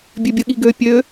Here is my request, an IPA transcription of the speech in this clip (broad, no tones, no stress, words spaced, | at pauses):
bʲøbʲəɠiɡø pʲø